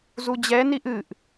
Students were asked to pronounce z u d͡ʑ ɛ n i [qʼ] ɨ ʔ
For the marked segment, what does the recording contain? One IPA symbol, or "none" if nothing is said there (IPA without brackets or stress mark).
ʔ